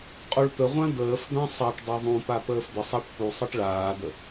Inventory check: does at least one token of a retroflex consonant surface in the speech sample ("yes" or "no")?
yes